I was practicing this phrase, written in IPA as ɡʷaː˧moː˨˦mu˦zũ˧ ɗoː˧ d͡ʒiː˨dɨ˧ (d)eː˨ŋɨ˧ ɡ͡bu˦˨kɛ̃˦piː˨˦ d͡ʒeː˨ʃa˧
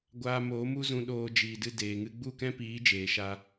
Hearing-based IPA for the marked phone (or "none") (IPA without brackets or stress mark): d